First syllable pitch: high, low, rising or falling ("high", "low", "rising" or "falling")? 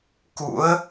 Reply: rising